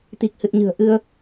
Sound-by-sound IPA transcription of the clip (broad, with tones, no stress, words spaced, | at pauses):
t̪i˨˩k̚hɨ˨˩t̚ɲɨ̤˨˩ə̯ ʔɨ˧ə̯